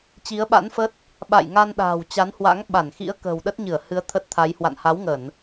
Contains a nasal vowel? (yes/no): no